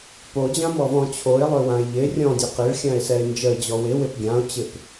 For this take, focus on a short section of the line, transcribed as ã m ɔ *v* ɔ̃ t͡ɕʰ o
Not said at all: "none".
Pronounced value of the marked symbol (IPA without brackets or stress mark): v